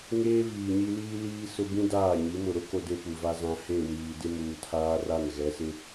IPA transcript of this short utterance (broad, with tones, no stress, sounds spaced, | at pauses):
ŋ eː˦ v iː˨ ɲ i˦ l iː˦ l iː˦ s ʊ˦ b ĩ˦ d aː˦˨ ɲ i˨˦ m ʊ˨ ɾ ʊ˦ k o˦ d e˦ p u˨ v a˦ z ã˨ h e˦˨ w iː˨ d ɪ˦ m uː˨ tʰ aː˦ r a˦˨ n ɣ ɛ˨˦ s ɪ˦